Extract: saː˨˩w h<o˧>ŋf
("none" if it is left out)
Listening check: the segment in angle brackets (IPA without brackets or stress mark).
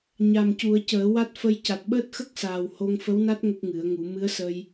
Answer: o˧